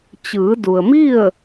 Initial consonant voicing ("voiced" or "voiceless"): voiceless